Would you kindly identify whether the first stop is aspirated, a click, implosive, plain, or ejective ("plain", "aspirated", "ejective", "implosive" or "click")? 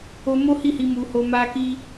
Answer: plain